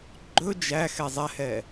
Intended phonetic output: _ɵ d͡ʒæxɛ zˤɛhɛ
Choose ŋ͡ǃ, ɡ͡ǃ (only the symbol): ɡ͡ǃ